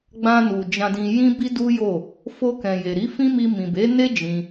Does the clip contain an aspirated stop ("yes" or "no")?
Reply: no